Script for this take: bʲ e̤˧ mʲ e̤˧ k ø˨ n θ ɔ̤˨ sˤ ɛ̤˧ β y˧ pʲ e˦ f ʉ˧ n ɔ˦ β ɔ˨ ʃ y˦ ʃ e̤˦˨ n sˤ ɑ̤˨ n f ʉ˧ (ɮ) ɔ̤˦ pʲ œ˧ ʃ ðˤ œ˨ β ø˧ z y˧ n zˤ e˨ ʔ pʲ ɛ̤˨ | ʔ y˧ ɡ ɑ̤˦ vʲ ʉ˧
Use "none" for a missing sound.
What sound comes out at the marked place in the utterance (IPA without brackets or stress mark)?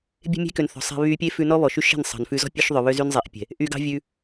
z